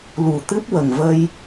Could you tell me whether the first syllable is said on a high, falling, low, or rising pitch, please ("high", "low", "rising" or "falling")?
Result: low